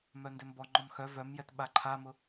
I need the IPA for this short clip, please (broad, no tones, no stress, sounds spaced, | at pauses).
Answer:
m œ n d ʏ m b ɔ ŋ͡ǃ ɔ m x œ v œ m j ɛ t ɓ a ǃʰ a m ʊ